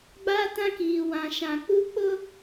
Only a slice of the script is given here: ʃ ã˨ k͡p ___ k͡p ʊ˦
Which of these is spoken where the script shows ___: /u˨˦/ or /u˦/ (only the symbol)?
u˦